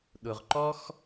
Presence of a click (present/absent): present